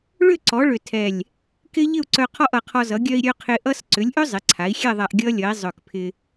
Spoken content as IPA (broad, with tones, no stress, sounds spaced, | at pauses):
ɭ ʏ˥˨ ǀ ɔ˩˥ ɭ ʏ˧˩ tʰ ɛ˧˩ lʲ | k ɪ˦˥ ʎ ɪ˥˨ u̯ ǀ œ˧ qʰ ɔ˥˨ ʔ ʌ˧˩ qʰ ɔ˧ z ʌ˩˥ ɡʲ œ˧ i̯ ɾʲ œ˧ qʰ ɪ˧ ʔ ʌ˦˥ s ǀ ʏ˩˥ lʲ ʔ ʏ˦˥ zˤ ɪ˩˥ ǀʰ a˩˥ i̯ xʲ ɛ˥˨ ðˤ a˧ ʔ ɡʲ ʌ˦˥ lʲ ʌ˩˥ i̯ zˤ œ˧˩ k pʰ ɪ˧